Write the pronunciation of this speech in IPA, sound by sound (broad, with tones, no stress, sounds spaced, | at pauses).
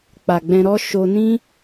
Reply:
k͡p a˨ ɡ͡b ɛ̃˧ ɾ ɔ˦ ʃ o˧ n ĩ˦